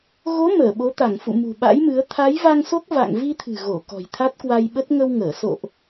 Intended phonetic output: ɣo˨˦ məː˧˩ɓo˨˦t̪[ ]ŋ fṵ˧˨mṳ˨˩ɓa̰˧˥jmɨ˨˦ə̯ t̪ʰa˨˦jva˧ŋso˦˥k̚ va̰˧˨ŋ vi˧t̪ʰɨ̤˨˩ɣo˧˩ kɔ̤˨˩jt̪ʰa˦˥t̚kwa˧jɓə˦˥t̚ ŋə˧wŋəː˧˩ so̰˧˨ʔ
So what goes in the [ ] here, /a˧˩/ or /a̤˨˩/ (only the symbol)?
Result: a˧˩